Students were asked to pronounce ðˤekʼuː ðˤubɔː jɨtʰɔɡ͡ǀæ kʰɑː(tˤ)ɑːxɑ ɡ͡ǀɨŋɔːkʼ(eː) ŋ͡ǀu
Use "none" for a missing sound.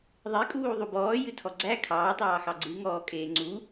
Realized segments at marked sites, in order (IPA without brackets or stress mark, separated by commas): tˤ, eː